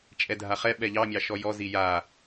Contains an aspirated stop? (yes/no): no